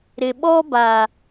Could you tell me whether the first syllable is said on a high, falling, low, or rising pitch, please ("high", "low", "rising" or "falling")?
low